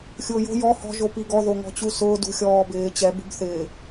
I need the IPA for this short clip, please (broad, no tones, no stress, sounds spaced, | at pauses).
xʲ ʊː j o̤ j ɔ h ɔ̤ ʒ o p i ɡ ɔ ð o ŋ ɔ̤ t͡ɕ u s ʊː d ṳ xʲ ɔː b ɪː t͡ɕ ɛ b ṳ b θ ɪː